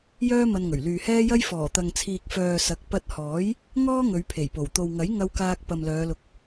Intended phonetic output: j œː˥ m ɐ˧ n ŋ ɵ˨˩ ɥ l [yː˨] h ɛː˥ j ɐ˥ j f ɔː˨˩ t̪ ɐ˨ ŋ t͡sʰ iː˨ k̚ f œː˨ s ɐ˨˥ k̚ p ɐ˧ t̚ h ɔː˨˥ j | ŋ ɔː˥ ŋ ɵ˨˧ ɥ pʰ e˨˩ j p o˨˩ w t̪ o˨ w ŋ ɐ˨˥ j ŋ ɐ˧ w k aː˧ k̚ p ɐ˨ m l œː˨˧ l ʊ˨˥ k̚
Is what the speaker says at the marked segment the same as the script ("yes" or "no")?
yes